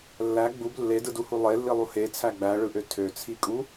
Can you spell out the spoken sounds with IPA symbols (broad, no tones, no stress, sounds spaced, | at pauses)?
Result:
lː æ ɡ͡b u b lː e d ɯ d u h u lˠ e lː i lˠ u h e t͡sʰ æ ɡ͡b æ ɭ ɯ ʔ ø tʰ ø t͡sʰ i kʼ u